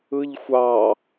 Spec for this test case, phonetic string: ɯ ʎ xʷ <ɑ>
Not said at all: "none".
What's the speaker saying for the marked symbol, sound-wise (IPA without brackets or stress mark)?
ɑ